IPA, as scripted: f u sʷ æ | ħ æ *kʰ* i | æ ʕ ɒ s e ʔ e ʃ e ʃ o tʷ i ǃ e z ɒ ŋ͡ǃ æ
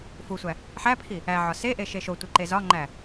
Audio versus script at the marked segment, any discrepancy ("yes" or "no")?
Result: yes